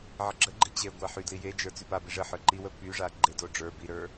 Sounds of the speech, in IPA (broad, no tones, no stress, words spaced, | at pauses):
ʕəɡ͡ǁəɡ͡ǃi t͡ɕe ɡʷaħydli jed͡ʒə˞ t͡sypabi ʐəħə˞ ǃiwə pyʐa ɡ͡ǃedo ɖ͡ʐə˞ biɾə˞